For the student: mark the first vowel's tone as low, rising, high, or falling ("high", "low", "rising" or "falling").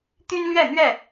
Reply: high